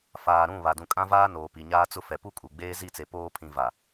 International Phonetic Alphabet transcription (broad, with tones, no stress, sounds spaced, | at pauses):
f aː˨ ɾ ũ˦˨ β a˨ d ũ˨ kʼ ã˦ v aː˦ n oː˨ p i˨ ɲ aː˦ t͡s ʊ˦ f ɛ˨ p u˦ kʼ u˨ ɡ͡b eː˦ z i˦˨ t͡s e˨ p oː˦ pʰ ĩ˨ v a˨